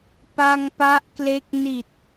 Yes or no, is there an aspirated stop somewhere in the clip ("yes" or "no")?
no